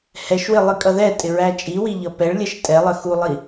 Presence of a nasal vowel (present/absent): absent